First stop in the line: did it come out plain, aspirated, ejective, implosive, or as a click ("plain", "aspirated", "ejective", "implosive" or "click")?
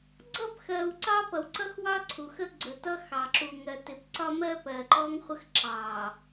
click